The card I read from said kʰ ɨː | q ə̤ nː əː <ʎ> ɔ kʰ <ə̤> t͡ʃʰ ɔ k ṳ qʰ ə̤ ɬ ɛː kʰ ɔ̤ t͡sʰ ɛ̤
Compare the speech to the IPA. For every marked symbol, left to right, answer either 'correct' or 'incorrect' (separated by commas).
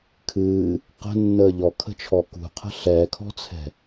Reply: correct, correct